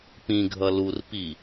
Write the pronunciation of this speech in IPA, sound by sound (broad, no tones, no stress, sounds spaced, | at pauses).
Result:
p ĩ ɡʱ ʌ l u r p i